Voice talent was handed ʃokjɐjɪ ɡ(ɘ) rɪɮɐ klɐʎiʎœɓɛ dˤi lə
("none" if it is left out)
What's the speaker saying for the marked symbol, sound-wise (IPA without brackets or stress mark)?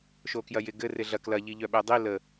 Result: ɘ